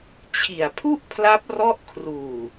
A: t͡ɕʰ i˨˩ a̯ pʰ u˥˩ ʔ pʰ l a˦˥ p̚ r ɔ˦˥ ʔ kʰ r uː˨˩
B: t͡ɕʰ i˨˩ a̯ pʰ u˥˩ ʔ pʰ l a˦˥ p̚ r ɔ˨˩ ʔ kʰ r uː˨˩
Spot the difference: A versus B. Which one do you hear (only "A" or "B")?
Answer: A